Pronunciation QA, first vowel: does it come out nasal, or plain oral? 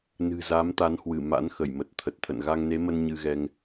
oral